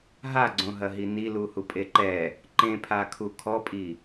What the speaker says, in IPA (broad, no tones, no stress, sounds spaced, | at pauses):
ɦ a ɡ͡ǀ õ ɦ ɐ ɦ i n i l u h u pʼ e ǃ ɛ | ǃ ẽ pʰ a kʰ u kʰ ɔ pʼ i